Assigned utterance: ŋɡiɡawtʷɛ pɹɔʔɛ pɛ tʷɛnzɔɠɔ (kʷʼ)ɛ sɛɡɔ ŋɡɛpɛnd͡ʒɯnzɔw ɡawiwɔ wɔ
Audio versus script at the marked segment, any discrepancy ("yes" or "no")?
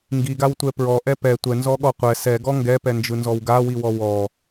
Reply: yes